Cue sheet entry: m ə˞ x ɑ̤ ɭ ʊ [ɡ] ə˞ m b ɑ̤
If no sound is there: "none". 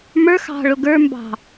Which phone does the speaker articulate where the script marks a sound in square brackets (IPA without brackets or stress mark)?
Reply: ɡ